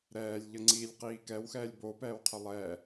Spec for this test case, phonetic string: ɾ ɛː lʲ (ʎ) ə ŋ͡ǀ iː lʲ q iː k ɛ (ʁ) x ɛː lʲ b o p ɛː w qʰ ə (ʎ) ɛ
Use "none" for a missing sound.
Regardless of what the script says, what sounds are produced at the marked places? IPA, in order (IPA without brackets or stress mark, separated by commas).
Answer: ʎ, w, lˠ